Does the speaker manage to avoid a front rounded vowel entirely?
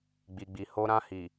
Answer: yes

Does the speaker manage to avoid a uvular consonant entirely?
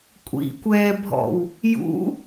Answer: yes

